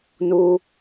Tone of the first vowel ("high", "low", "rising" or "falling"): high